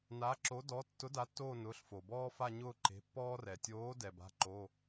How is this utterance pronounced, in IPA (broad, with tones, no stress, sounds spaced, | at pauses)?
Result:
n aː˨˥ ǁ o˨˥ d ɔ˨˥ tː ʊ˨˥ d a˨˥ tː oː˦˨ n ʊː˩˧˩ ɬ f o˩ b ɔː˦ f a˦˨ ɲ ʊː˦˨ ǃ e̤˩˧˩ pː ɔː˦ r ɛ˩ tʲ oː˨˥ d ɛ˩ b a̤˩˧˩ ǃ o˩˧˩